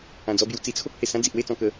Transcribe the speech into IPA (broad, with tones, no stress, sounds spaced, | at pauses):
ã˧ d͡z ɔ˦ b j u˧ t͡s i˧ t͡sʰ o˦ k̚ h e˨˩ s ã˦ d͡z i˨ ʔ w e˥˧ t͡s ɔ̃˧ k ə˧